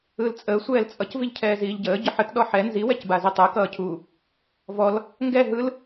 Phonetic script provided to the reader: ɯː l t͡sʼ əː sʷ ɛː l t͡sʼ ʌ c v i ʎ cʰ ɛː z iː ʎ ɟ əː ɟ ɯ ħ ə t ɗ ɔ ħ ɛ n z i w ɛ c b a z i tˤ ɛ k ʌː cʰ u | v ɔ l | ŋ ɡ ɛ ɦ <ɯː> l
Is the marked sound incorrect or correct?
incorrect